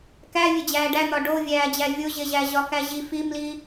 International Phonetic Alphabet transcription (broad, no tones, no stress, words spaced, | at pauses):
kæ vʲed͡ʑæːɖæn̪ɒ ɖovʲæːd͡ʑæ vʲoʑeʑæ ʑɒkæʑi fimli